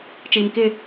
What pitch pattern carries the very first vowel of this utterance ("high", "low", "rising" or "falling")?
low